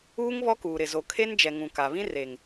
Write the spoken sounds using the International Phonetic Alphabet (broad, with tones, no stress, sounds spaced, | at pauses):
uː˦ ŋ β ɔ˦ k uː˨ ɾ ɪ˨ z o˨ kʰ e˦ n d͡ʒ ɛ˨ ŋ ũ˨ k a˨ β ĩ˦ r e˨ ŋ